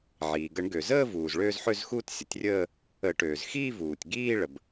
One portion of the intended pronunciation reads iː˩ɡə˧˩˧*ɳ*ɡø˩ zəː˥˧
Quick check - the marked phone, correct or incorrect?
correct